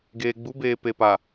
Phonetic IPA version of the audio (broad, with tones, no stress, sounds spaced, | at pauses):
ɡ eː˨ ɡ͡b u˨˦ b eː˨ p e˨ p a˨